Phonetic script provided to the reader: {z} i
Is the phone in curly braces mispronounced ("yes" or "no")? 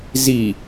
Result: no